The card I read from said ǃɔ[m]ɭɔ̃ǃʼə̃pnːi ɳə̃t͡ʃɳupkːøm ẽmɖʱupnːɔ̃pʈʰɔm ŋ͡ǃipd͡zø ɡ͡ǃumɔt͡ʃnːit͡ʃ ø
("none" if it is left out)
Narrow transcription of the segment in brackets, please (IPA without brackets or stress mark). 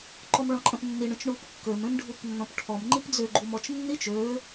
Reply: m